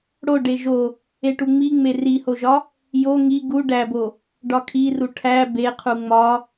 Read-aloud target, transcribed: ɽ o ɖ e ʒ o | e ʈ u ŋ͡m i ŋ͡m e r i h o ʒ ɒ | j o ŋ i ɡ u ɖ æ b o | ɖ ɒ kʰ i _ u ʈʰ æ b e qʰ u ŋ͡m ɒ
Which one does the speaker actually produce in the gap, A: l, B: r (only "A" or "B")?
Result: B